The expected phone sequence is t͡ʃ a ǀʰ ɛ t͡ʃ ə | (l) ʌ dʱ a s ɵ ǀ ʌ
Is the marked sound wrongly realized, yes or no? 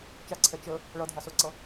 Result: yes